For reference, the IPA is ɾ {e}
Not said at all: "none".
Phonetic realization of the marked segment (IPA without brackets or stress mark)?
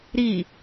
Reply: i